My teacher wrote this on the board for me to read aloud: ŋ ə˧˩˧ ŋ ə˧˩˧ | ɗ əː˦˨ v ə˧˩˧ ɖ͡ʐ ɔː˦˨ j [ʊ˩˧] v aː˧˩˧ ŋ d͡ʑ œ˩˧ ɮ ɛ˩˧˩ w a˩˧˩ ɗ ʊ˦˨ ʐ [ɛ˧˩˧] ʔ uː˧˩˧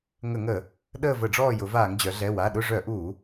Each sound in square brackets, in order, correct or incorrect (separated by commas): correct, incorrect